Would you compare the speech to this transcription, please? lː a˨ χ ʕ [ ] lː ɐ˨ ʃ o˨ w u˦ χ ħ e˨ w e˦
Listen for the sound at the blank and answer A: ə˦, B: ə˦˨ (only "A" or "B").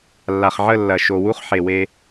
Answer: B